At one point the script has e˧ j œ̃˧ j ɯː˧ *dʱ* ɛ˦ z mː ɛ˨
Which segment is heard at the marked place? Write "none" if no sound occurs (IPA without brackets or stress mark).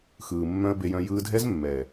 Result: dʱ